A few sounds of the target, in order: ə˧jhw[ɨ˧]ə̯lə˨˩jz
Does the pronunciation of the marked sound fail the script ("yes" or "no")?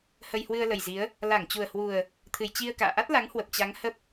no